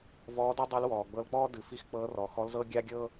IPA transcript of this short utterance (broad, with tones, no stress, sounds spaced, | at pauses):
v ɔː˧˥ d i˥ dˤ i˧˥ l w ɔː˩ ɡ͡b ɤ˧ l k͡p ɔː˥ d ɨ˩˧ f i˧˥ x k͡p ɤː˧˥ r ɔ˩˧ x ɔ˧˥ l z ɤ˥ ɡʲ a˥ ɡʲ ɤː˥